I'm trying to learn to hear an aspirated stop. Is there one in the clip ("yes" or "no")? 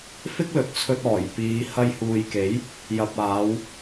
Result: yes